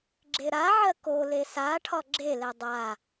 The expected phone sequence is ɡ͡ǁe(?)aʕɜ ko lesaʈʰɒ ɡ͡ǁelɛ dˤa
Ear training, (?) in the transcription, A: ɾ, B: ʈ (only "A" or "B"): A